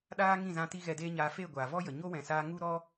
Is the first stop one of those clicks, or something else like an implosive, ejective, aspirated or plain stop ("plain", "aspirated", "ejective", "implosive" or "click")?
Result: implosive